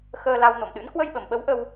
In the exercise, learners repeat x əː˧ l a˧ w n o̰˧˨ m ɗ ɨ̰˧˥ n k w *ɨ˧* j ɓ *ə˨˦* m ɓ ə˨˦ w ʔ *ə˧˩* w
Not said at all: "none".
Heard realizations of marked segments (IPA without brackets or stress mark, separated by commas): ə˧, ə˨˩, ə˧